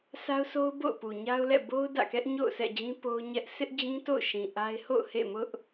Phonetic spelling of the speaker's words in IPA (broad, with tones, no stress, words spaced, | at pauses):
sa˦ʊ̯so˦ʊ̯ bo̰˦˨ʊ̯pu˨ɲa˦ʊ̯lɛ̰˦˨ bo˦ʊ̯ dä̰˦˨kɛ˦ʔɲo̰˦˨ʊ̯ sʰɛ̰˦˨d͡ʑĩ˦ po˦ʊ̯ɲɛ˦ʔ sʰɪ˦ʔd͡ʑĩ˦to̰˦˨ʊ̯ʃĩ˨ ʔa˦ɪ̯ ho̰˦˨ʊ̯hḛ˦˨mʊ˦ʔ